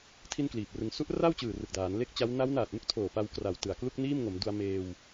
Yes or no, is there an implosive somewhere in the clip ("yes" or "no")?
no